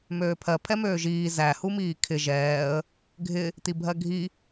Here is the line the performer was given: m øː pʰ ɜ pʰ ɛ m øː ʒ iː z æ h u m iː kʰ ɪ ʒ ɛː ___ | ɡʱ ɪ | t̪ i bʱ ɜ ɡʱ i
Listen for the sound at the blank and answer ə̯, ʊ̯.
ə̯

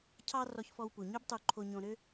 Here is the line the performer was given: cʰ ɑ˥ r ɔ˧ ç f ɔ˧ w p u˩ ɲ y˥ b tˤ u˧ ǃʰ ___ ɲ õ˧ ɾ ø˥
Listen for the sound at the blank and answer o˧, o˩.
o˧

